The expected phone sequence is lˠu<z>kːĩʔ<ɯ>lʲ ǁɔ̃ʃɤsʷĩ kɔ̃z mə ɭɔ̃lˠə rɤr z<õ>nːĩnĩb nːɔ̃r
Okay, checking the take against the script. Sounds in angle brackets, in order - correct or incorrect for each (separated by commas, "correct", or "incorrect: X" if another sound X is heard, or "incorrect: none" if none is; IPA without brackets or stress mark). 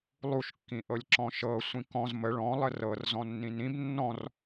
incorrect: ʃ, incorrect: ɤ, incorrect: ɔ̃